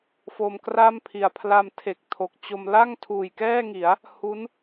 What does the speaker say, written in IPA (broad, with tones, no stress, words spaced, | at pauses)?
fo˧mkra˥˩mpʰi˨˩a̯ pʰla˧mtʰe˨˩k̚ tʰo˨˩k̚t͡ɕo˧m la˥˩ŋtʰuː˨˩jkɛː˥˩ŋi˩˦a̯ | hu˦˥n